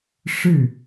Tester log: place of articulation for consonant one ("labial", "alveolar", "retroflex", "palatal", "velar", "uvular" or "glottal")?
retroflex